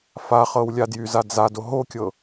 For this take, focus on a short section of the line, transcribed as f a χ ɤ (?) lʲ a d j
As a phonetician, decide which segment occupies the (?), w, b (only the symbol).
w